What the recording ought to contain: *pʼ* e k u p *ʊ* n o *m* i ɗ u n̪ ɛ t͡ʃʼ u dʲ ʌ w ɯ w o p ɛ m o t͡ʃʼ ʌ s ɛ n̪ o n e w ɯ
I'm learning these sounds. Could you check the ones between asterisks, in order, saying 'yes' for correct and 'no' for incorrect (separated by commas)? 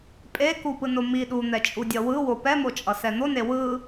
yes, no, yes